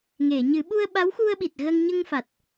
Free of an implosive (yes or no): no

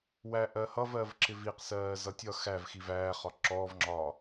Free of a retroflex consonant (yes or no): yes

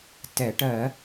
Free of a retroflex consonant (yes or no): no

